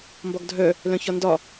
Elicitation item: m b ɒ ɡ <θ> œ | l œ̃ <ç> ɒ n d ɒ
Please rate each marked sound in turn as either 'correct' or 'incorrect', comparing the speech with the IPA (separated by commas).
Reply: incorrect, correct